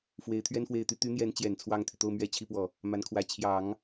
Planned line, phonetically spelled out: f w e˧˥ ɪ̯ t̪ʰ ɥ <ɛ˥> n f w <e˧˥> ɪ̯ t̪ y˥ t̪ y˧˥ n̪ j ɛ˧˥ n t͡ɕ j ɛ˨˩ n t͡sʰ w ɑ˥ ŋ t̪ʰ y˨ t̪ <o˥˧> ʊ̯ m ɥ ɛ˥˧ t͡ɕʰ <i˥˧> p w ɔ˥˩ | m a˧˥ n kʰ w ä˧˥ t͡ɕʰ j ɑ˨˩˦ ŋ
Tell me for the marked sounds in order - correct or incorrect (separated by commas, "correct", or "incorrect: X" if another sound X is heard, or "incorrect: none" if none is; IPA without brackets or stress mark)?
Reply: correct, incorrect: e˥˩, correct, correct